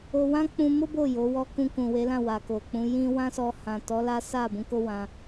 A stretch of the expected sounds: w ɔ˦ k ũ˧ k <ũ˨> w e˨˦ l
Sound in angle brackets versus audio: correct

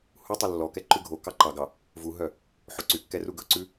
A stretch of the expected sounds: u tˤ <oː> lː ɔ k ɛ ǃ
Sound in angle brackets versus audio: incorrect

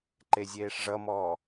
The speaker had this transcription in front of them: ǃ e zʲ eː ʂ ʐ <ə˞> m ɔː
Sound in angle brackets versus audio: incorrect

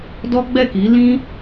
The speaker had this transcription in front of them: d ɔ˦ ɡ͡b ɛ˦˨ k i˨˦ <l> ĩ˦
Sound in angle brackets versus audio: correct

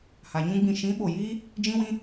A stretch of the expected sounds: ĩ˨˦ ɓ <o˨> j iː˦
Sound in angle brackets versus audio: correct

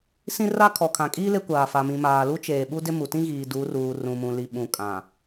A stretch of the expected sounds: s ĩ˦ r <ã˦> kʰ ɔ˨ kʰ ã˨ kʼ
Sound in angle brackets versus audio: incorrect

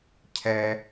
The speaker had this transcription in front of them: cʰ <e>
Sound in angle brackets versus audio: incorrect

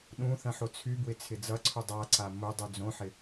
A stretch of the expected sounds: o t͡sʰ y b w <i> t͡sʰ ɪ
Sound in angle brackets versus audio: incorrect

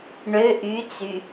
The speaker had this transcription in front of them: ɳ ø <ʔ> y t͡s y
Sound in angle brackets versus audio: correct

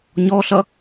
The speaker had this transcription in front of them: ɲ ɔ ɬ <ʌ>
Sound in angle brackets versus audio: correct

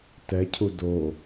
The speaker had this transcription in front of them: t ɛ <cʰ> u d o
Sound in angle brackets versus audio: correct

